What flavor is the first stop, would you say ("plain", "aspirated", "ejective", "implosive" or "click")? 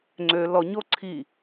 click